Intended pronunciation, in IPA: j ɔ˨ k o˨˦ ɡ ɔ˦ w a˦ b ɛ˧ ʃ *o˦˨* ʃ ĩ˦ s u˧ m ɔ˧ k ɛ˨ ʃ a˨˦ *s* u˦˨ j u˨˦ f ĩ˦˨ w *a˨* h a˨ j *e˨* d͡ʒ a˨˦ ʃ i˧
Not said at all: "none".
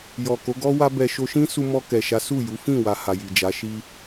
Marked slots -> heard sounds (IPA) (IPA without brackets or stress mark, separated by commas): o˧, s, a˨, i˨